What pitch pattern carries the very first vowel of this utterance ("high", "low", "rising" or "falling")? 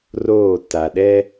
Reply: falling